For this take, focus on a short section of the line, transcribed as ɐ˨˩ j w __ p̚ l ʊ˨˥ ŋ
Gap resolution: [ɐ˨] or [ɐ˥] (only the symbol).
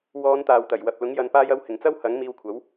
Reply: ɐ˨